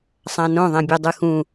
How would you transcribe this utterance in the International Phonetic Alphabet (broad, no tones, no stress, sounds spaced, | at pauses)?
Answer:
sˤ ã n õ ðˤ ɛ̃ bʲ ɛ dˤ ɯ x ũ